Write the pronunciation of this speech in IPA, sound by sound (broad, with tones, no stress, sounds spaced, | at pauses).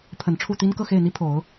pʰ ə˨˩ n ʈ͡ʂʰ u˥˩ t̪ i˥ n k ɤ˥˧ x e˥˩ ɪ̯ n̪ i˥ pʰ o˨˩˦ ʊ̯